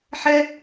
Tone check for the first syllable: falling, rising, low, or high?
high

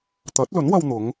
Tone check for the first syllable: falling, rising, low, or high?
rising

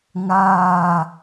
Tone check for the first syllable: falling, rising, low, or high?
falling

